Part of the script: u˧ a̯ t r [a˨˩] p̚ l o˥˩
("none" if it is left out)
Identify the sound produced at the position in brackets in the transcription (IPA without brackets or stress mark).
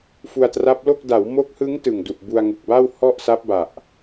a˦˥